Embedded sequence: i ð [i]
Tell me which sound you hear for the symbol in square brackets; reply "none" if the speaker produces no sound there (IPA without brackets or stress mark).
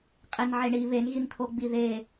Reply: e